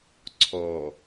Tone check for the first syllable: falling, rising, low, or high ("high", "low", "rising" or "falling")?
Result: low